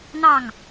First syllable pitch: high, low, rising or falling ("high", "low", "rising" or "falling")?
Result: falling